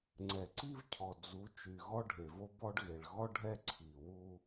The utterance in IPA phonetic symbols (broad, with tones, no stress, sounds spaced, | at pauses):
ŋ͡ǀ ɛ˨ ǀ i˦ v cʰ ɔ˨ d͡z u˨˦ t͡ʃ y˨ ɣ ɔ˦ ɖʱ e˨ v o˦ b ɔ˦ ɖ ɣ e˨ ɭ ɣ ɔ˦ ɖʱ ɛ˦ ǀʰ i˨ w u˦